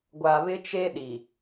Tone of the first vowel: low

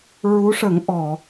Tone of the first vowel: rising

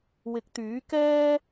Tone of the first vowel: rising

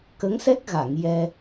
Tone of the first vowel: rising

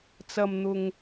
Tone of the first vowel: low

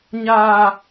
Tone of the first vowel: high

